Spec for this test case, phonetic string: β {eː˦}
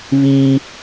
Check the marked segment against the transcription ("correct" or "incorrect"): incorrect